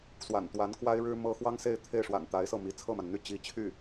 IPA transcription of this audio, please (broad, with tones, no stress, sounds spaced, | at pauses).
s w a̰˨˩ n t̪ w a˧˥ n k w a˥ ɪ̯ ɻ ɻ̩˥ m ɤ˥ x w ɑ˥ ŋ s e˥˧ ɪ̯ t̪ʰ e˥˩ ɪ̯ ʂ w a̰˨˩ n t̪ a˧˥ ɪ̯ s ɤ˥˩ m i˧˥ t͡sʰ ɤ˥˩ m a˩ n n̪ y˥˩ t͡ɕ i˧˥ t͡ɕʰ y˥˩